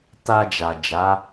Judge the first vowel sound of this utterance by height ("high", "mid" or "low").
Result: low